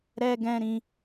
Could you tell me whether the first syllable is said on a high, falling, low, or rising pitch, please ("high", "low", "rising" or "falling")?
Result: high